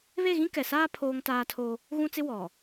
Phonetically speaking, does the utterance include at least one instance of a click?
no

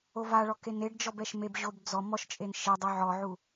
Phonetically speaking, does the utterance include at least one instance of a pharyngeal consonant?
yes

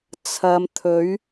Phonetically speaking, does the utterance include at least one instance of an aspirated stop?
yes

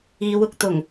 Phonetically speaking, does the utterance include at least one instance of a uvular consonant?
no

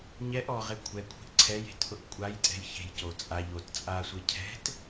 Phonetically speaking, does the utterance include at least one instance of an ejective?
yes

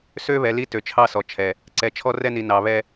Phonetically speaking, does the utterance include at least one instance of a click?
yes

